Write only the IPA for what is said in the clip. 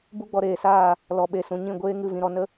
bu˦ɡ͡bɔ˧ɾeː˨saː˦˨ | lɔ˨ɓe˨sũ˨ ɲĩ˦˨ɡʷeː˦ ŋɨ˦˨vĩ˧ɾɔ˧nə˦

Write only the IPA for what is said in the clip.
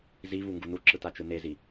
zi βuŋɡunuǁɯ tat͡ʃɯnezi

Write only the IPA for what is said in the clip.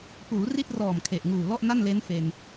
puː˩˦ri˥˩t̚rɔː˨˩m kʰe˨˩ʔŋuː˨˩ lɔ˥˩ʔna˥˩nle˦˥n fe˧n

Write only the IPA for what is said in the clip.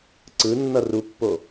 ǀɯnːʌ rupːo

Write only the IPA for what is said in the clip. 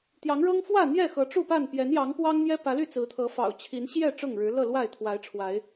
t̪jɑ˨˦ŋɻɤ˦ŋ fwä˥˨n̪jɛ˥˨xɤ˨˦ ʈ͡ʂu˥˨pa˥˨n pjɛ˨˦njɑ˨˦ŋ pwɑ˦ŋn̪jɛ˦ pä˨˦ly˥˨t͡sɹ̩˨˦t̪ʰɤ˨˦ fɑ̰˨˩ʊ̯t͡ɕʰi˨˦n ɕjɛ˥˨ ʈ͡ʂʊ˥˨ŋɻɻ̩˨˦lɤ˥˨lwa˥˨ɪ̯ t̪ʰwa˨˦ɪ̯ʈ͡ʂʰwa˨˦ɪ̯

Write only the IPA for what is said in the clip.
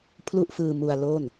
pʰlu˥˩ʔfɯː˧ mu˧a̯lo˥˩n

